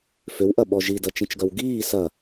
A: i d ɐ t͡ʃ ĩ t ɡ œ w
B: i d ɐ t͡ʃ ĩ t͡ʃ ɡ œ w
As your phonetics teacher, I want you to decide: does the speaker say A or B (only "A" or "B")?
B